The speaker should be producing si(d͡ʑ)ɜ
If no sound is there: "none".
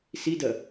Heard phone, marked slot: d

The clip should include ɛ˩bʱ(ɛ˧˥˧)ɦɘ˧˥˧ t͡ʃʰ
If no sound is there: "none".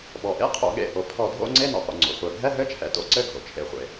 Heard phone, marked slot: ɛ˧˥˧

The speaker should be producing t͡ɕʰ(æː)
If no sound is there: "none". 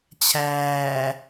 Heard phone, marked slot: æː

